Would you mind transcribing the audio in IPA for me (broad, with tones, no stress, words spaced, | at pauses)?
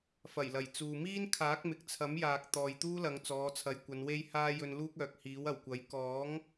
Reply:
fɐ˨˩jlɐ˨˩j t͡suː˨miː˥nkʰaː˨˥k̚ mɪ˨k̚t͡sʰɐ˨˥mjaː˨k̚ t̪ɔː˨jt̪uː˥lɐ˨˧ŋ t͡sɔː˨˧t͡sʰɐ˨˧jkʷɐ˨˧n we˧jhaː˧ jɵ˨nluː˧k̚ œː˨k̚hiː˨˥wɐ˨˩wkʷɐ˨˥j kɔː˨˥ŋ